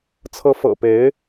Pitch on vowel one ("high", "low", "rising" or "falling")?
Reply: rising